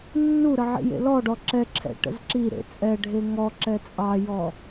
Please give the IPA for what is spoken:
nː u ɾ ə ʕ ḭ j ḛ l ɔ ɖ ɔ ǁ ɛ ǁʰ ɛ̰ ʈ ə̰ z ǁ i ɾ ḛ t͡sʼ ɛ ɖʱ e ŋ ɔ ǁ ɛ t͡sʼ ɑ j ɔ

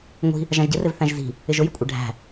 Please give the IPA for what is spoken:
ŋʷ i̤ | ʒ ɑ̃ ʒ ɟ ɪ r ɪ v θ æ̃ ʒ z i̤ | ɪ ʒ ʊ j ɪ kʷʼ ɛ ɖʱ æ̤

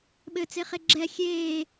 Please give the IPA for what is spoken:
ɓ ɘ t͡s e χ e ɡ͡ǁ ɛ xʲ eː

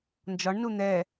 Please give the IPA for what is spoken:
n d͡ʒ ɒ ɳ n u n̪ ɛ

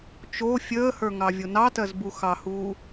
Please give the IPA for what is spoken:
t͡ʃ o fʲ əː h ə˞ ŋ ɑ vʲ o n ɑ t ɜ z b u x ɑ h uː

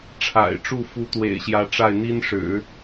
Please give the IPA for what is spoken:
ʈ͡ʂʰ a̰˨˩ ɪ̯ ʈ͡ʂ u˥˩ f u˧˥ t̪ w ḛ˨˩ ɪ̯ ɕ j ä˧˥ ʈ͡ʂ a˥˩ ɪ̯ n̪ i˥ n ʂ ɻ̩˨˩˦

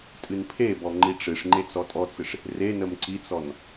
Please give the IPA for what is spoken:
tʼ ɨ n pʰ e b ɔ ŋ͡ǃ i ʈ͡ʂ ɨ ʂ ŋ͡ǃ e t͡s ɔ tʼ ɔ t͡s ɨ ʂ | r e n ə m ǀ i t͡s ɔ n

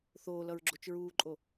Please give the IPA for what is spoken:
θ oː l ʌ ɹ ɡ͡ǁ o t͡ʃ ɹ uː ǃʼ o

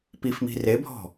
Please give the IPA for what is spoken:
p i f m i̤ r e bʱ ɔ̤

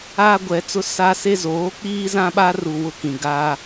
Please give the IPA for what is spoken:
aː˦ ɡʷ ɛ˨˦ t͡s ʊ˦ s a˦ s e˦ z oː˨˦ k͡p iː˦ z ã˦ ɓ a˦ r u˨ w ʊ˦ k ĩ˨ ɡ a˦

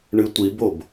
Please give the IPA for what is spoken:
ɳ ɨ tʷ i b o b

